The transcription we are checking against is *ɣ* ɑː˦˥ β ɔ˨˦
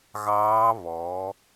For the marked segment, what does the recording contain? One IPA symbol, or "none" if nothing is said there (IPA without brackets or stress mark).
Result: ɣ